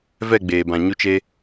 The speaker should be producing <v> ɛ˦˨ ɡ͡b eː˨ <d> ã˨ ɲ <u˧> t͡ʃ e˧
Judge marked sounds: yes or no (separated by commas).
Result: yes, no, yes